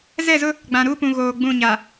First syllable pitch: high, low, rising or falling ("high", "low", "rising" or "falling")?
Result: falling